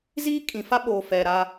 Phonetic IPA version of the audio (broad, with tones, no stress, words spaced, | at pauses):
ziː˦kʼĩ˨fa˦ɓo˨ fɛ˨ɾa˦